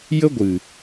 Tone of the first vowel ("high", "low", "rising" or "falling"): high